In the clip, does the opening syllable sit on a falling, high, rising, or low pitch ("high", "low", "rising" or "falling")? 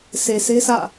low